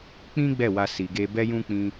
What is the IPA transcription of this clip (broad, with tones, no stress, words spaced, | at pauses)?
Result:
k͡pĩ˦ ɡ͡bɛ˦˨wa˧ si˨ɡe˧ bɛ˦jũ˦k͡pĩ˧